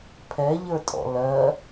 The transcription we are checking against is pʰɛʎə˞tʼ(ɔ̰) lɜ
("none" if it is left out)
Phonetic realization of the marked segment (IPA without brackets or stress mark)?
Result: ɔ̰